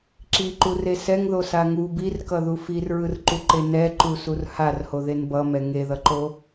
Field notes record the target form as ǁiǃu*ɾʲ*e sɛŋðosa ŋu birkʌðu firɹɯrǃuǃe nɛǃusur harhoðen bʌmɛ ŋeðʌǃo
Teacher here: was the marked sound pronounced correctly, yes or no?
no